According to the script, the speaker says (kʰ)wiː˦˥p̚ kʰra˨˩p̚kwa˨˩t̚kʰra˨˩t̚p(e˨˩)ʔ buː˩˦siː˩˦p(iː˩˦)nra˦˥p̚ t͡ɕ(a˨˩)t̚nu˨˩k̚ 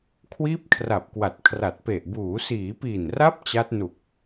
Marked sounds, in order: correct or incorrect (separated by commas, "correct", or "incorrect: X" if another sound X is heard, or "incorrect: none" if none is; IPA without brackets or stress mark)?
correct, correct, incorrect: iː˨˩, incorrect: a˦˥